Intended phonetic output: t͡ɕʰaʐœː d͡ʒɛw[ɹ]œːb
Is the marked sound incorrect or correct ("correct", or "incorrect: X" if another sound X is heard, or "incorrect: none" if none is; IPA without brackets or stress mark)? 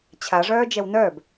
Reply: incorrect: n